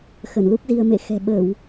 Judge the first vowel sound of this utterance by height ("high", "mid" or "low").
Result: mid